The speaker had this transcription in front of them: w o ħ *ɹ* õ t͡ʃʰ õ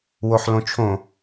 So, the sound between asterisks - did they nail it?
no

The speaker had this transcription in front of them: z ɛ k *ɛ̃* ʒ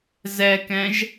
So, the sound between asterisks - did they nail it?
yes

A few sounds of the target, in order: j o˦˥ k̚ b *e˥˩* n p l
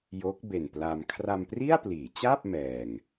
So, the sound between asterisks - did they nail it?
no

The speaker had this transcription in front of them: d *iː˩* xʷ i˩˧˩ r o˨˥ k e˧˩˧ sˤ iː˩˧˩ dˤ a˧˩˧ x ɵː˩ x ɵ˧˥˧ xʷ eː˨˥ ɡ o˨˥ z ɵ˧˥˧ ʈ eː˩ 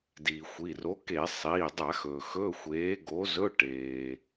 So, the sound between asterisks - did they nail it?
yes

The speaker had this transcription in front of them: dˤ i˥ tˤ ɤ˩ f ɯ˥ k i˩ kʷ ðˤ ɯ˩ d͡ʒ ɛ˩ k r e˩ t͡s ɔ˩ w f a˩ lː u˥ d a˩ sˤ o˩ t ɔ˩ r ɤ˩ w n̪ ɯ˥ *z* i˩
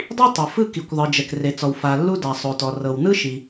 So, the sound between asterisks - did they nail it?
no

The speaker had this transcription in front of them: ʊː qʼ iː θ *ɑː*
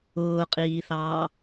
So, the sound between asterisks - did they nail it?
yes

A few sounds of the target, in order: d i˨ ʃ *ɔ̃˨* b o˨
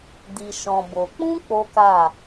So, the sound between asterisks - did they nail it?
yes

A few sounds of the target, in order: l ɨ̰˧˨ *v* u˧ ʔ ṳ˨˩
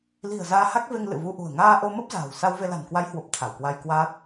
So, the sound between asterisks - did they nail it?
yes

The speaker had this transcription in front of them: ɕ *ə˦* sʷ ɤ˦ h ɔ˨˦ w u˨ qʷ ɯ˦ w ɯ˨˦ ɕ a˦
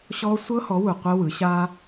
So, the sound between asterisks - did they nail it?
no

